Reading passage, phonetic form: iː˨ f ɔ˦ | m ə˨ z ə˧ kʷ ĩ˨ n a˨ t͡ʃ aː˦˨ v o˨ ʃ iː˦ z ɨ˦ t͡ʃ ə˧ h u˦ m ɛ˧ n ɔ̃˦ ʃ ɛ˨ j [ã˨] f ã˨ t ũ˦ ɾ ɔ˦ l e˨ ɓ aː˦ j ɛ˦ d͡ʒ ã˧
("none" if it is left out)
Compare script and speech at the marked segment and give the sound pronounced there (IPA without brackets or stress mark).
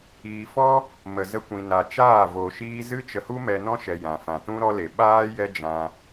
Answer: ã˨